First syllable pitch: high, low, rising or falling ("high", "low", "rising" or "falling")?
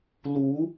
rising